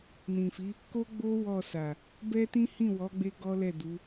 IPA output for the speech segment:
n ĩ˨ f i˨˦ | k o˦ ɡ͡b o˦ w ɔ˦˨ s a˨ | b ɛ˦ t ĩ˦ h ĩ˦˨ w ɔ˨˦ ɡ͡b e˦ ɡ ɔ˦ l ɛ˦˨ d u˨˦

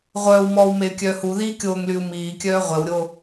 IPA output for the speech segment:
ʁʷ œː w m ɔː w m e y̯ kʲ œː h u ð iː kʲ oː ŋ l y u̯ m iː kʲ œː ʁʷ ɛ w ɾʲ o

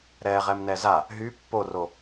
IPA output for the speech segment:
ɾ ɛ ʁ ɛ m n ɛ z a | ɦ y pː o r o

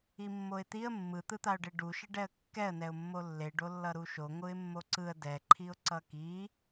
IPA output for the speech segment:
i mː o ɪ̯ t̪ i ə̯ mː ɯ t̪ ɯ t̪ a ʊ̯ ɖ e ɖ u ʃ e ɖ ɛ ə̯ kː ɛ ə̯ n ɛ ʊ̯ mː o lː e ɖ o lː ʌ ɾ u ʃ o ŋʷ ɯ ɪ̯ mː o ǀ ɯ ə̯ d ɛ ǃʰ i ʊ̯ ǀ ʌ k i

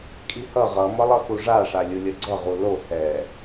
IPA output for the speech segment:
kʼ i h ʌ ʁ ʌ m ʌ lˠ ʌ x u ʐ a ʂ a lʲ u lʲ ʌ ɡ͡ǀ ʌ ʁ u l o h ɛ

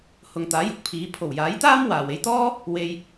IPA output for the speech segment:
h ʊ˨ ŋ t̪ aː˨˥ j ʊ˨˥ k̚ pʰ iː˨˥ pʰ o˨˩ w j aː˨˥ j t̪ aː˥ m w aː˨ w e˧ j t̪ ɔː˥ | w e˧ j

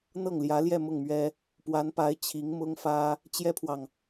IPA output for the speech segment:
n̪ ɤ˥˩ ŋ l j ä˧˥ l j ɛ˥˧ m ʊ˥˩ ŋ m ɥ ɛ˥ | p w a˧˥ n p a˧˥ ɪ̯ t͡ɕʰ i˧˥ ŋ m ʊ˥ ŋ f ä˥ | t͡ɕ j ɛ˥ pʰ w ɑ˨ ŋ

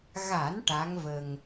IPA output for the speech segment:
ɣ a˨˩˦ n ʈ a˧˥ ŋ v ə˧ ŋ

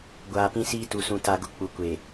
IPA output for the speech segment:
ɡʷ aː˨ p ĩ˦ s iː˦ t u˨ s ũ˨ t a˨ ɡ ʊ˨ k͡p u˨ kʷ e˨

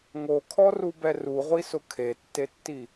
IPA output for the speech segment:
ŋ o kʰ ɔ r u b ɛ r u ʁʷ i s ʊ kʰ e tː e tː i

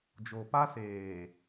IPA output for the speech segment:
d͡ʒ o˨ p a˦ s eː˨

